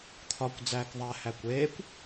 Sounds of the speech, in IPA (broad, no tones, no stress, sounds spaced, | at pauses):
t̪ʰ ɒ kʷ d͡z æː k ðˤ æ h æ kʷ eː kʷ